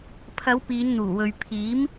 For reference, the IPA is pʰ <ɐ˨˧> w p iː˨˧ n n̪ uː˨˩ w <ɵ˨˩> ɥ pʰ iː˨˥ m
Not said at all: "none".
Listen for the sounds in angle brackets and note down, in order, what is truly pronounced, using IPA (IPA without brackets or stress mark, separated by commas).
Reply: ɐ˨˧, ɵ˨